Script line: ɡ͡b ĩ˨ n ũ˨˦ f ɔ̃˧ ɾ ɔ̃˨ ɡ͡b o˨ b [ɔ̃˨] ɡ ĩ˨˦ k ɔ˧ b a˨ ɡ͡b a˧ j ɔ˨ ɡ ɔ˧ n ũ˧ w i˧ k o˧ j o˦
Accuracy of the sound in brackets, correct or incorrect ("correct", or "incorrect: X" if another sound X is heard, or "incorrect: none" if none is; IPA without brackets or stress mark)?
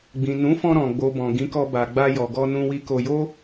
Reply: correct